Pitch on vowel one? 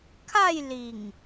falling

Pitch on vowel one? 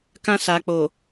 high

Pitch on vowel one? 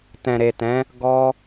low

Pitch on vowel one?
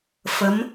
rising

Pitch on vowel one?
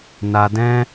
low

